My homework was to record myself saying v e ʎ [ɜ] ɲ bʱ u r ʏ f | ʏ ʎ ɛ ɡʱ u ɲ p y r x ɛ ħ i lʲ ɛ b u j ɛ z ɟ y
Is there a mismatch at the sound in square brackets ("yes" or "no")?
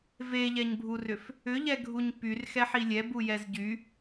yes